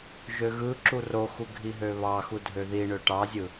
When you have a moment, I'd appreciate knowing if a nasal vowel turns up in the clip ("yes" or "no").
no